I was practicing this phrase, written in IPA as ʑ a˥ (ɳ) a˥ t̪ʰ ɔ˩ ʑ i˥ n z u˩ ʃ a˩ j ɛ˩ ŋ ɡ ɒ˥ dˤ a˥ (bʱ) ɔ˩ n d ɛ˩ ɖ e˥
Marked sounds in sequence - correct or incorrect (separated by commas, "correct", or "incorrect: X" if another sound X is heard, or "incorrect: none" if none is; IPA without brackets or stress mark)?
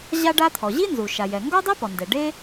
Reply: incorrect: ɖ, incorrect: p